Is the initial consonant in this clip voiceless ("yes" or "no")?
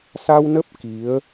yes